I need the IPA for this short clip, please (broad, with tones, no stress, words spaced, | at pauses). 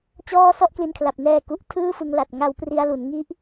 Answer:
t͡ɕɔː˥˩ sɔ˥˩ʔkli˧nkʰla˨˩p̚ nɛː˧ku˨˩ʔ tʰɯː˥˩fɯ˧ŋ la˨˩t̚ŋa˧wpri˧a̯ lu˩˦nŋi˦˥ʔ